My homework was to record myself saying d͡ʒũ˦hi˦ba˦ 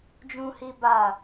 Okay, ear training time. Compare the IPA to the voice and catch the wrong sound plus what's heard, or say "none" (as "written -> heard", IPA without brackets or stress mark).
a˦ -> a˦˨